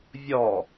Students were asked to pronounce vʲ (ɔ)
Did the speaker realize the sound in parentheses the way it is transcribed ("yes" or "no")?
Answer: yes